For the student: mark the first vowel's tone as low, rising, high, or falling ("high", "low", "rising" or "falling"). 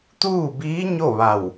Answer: falling